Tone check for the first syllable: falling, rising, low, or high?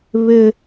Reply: high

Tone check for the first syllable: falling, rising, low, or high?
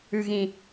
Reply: low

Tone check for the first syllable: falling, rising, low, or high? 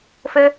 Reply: high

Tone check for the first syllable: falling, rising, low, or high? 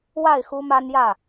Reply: falling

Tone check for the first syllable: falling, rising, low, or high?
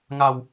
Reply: low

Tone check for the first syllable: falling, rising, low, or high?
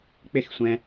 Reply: falling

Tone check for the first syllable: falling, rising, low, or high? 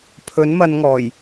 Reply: rising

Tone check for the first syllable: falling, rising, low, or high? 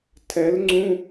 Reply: rising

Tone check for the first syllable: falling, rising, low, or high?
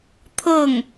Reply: falling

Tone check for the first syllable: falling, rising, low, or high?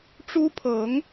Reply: high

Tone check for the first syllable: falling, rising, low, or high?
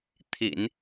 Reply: low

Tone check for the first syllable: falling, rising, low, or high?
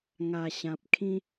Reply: low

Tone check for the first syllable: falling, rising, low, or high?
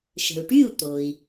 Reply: low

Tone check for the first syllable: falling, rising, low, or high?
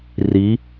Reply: rising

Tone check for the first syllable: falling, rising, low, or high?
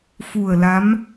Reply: low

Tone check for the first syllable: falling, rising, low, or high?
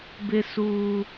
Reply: low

